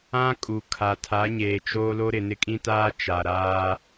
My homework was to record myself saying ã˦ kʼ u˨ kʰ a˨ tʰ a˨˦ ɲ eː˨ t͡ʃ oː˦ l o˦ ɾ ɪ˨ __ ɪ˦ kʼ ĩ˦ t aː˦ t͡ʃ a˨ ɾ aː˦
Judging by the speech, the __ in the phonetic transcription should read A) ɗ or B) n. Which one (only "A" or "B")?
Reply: B